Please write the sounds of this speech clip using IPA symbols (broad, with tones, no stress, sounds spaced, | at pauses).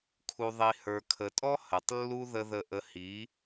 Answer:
kʰ u˨ ðˤ i˨ h ə˞˨ kʰ ə˨ tʼ ɔ˦ h ə˨ tˤ lː u˦ ð ə˦ ð ə˦˨ ʔ ə˦ h i˨˦